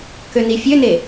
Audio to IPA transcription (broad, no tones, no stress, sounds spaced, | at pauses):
k ø n i fʲ ø n e